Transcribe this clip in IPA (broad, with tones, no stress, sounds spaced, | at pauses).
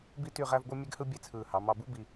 b i˥ t y˥˧ ʁ æ˥ v ɡʷ ɯ˥ mʲ e˥ ɡ h ɯ˥ bʲ e˥˧ t͡sʰ ɯː˧˩ h ɑ˩˧ m ɑ˧ b u˥ b i˧